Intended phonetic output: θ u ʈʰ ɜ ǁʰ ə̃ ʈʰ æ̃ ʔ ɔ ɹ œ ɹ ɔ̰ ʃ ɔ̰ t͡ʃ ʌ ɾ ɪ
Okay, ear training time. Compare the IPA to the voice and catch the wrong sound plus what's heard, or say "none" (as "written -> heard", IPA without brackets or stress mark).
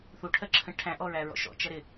œ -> æ